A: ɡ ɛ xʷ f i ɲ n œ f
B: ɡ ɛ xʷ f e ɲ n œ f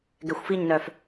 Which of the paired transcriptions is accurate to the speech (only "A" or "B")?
A